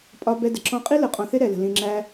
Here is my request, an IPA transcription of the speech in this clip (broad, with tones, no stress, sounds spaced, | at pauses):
pʼ ɒ˧ b ɛ˧ d ə˨ ǁ ɔ̃˧ qʼ i˦ l ə˧ qʼ ɔ̃˧ θ ɪ˦ ɾ ɛ˧ l ə̤˧ l ĩ˧ ŋ͡ǁ æ˧